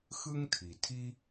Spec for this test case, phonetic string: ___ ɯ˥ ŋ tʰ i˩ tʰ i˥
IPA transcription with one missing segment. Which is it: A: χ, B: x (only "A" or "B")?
B